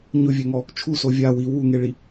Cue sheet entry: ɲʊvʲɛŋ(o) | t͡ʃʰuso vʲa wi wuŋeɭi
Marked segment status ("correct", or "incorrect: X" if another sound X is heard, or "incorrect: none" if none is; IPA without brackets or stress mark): incorrect: ɔ